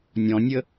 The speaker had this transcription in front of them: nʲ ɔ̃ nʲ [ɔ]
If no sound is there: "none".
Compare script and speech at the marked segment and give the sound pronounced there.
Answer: ə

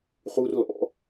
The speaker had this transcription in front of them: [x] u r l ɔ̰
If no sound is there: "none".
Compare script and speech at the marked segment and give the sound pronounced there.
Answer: χ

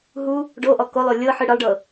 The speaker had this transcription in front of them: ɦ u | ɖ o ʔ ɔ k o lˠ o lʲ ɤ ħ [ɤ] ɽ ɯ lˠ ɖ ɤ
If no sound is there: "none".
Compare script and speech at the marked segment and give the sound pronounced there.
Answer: ɯ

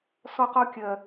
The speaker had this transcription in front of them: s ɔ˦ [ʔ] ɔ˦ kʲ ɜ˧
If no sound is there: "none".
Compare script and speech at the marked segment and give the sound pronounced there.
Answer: q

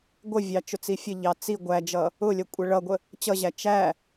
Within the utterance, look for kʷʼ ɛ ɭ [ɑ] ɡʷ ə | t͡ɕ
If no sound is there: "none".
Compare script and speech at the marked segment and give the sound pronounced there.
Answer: ʌ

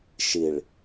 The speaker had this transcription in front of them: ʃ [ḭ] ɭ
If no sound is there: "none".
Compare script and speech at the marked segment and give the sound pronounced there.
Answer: i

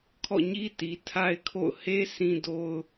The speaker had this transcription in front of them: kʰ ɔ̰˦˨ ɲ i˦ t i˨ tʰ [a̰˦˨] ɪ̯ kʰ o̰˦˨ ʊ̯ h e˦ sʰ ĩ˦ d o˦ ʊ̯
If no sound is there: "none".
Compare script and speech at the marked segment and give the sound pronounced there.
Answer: a˦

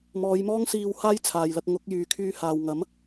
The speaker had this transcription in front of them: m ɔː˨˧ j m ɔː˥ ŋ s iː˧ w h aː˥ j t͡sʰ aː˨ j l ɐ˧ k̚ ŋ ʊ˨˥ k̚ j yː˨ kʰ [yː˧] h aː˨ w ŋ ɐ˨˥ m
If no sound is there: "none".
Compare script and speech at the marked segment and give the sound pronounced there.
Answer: yː˧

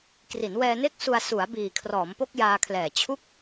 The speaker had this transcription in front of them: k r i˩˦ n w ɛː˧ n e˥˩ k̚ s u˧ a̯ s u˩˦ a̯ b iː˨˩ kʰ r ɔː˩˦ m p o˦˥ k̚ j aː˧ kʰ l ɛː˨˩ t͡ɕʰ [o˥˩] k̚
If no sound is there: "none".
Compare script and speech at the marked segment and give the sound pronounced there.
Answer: u˥˩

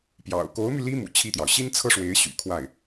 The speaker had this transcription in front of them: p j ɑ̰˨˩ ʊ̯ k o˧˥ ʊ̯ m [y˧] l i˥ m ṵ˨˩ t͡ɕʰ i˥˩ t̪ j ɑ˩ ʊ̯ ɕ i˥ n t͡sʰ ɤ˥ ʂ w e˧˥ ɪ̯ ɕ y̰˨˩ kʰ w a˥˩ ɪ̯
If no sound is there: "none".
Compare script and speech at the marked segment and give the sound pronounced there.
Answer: y˧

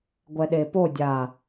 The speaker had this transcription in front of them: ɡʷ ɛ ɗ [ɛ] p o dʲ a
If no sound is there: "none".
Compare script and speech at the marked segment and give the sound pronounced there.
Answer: e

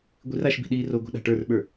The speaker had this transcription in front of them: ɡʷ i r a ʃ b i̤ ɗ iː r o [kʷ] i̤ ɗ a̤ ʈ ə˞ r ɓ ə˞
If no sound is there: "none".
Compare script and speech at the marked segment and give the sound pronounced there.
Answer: ɡʷ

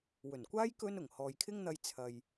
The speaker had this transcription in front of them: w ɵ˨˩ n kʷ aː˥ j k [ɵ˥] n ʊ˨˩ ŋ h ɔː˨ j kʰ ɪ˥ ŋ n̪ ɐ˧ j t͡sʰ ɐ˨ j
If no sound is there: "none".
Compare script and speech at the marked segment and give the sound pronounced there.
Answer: ɵ˥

